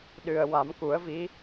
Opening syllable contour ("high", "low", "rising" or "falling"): low